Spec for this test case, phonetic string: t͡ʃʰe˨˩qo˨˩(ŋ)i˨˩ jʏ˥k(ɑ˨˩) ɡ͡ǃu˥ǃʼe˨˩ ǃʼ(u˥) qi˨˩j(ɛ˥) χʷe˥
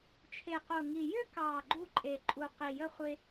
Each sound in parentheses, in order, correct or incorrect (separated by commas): correct, correct, incorrect, incorrect